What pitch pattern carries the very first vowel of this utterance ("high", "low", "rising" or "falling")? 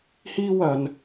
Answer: high